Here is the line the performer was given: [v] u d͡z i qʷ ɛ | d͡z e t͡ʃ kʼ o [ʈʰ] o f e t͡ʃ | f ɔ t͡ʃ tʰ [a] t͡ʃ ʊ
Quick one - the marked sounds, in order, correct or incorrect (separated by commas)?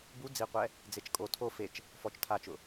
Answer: incorrect, incorrect, correct